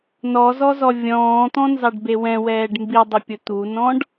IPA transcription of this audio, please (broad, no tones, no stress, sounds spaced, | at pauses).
n ɔ z ɔ z ɔ vʲ ɔ̃ː t̪ ɔ̃ n z ɑ ɖ b e w ɛ̃ w ɛː ɖ m b i dˤ ʊ pʲ ʊ t̪ u n ɔ̃ ɖ